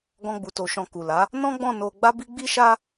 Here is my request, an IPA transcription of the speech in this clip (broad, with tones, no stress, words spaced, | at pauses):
ɡɔ̃˦ɡ͡bu˧to˧ʃɔ̃˧ ku˨la˨˦ | nɔ̃˦ɡ͡bɔ̃˦˨ no˧ ɡ͡ba˦bi˦ɡ͡bi˦ʃa˦